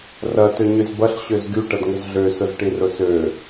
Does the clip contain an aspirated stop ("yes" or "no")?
no